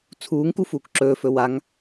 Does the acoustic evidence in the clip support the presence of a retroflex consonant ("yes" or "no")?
no